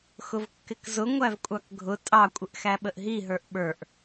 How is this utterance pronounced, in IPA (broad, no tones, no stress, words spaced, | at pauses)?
xʊvkːɪkzʊ ŋʷævkʷʼɑkɡʱʊ tʼɑ kʷʼɪʔxæɓəʔɦi ɦə˞ʔɓə˞ʔ